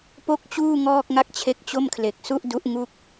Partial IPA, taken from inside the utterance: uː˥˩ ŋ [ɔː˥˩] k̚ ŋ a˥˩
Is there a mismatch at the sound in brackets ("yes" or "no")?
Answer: no